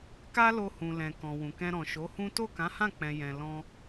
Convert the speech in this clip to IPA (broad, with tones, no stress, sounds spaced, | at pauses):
k a˦ l o˧ h ũ˨ l ɛ̃˨ k ɔ̃˨ w ũ˨ k ɛ̃˧ ɾ ɔ̃˨ ʃ o˨˦ h ũ˦ t o˦˨ k ã˨˦ h ã˦˨ k͡p ɛ̃˨ j ɛ̃˨ l ɔ̃˧